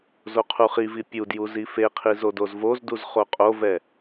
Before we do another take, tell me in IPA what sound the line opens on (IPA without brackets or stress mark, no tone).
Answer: z